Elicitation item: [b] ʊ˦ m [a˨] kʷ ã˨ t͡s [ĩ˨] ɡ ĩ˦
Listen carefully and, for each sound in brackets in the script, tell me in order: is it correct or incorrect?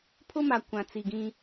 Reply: incorrect, correct, incorrect

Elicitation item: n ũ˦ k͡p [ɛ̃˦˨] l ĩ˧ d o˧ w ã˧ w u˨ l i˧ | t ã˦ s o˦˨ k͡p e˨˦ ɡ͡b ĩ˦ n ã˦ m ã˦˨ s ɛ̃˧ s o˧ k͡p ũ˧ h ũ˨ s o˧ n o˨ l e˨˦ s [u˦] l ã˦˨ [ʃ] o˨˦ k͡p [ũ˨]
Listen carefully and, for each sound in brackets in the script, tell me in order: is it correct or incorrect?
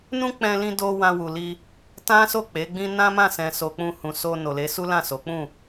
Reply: incorrect, correct, incorrect, incorrect

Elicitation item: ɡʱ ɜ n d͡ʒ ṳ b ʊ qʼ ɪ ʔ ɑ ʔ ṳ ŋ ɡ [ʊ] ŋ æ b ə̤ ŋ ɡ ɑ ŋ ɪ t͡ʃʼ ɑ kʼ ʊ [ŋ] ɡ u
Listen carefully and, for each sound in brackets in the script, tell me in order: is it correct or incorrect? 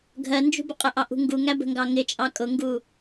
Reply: incorrect, correct

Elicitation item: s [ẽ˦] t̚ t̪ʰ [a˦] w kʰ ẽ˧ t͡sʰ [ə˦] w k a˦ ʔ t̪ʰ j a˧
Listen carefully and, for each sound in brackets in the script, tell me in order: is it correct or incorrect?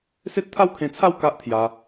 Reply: incorrect, correct, incorrect

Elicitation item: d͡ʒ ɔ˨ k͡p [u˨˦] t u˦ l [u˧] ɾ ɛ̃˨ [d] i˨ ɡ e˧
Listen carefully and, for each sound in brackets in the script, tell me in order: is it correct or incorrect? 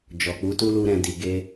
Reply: correct, correct, correct

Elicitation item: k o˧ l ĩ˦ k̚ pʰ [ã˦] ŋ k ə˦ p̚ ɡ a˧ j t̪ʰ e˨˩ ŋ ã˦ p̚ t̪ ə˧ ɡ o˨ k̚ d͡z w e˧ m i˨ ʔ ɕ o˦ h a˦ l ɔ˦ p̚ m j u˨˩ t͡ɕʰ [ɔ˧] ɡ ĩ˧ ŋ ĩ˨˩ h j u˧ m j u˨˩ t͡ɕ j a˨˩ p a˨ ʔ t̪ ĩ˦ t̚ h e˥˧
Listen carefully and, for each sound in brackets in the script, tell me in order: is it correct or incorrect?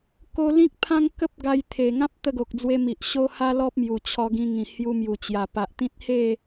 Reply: correct, correct

